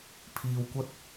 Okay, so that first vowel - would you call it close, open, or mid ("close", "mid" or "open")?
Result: close